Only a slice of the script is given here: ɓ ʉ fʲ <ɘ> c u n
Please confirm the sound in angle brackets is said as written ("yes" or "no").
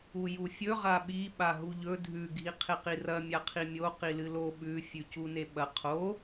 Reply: no